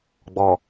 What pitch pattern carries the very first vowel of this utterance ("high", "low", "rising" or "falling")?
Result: low